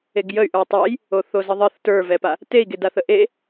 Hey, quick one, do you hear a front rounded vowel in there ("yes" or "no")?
yes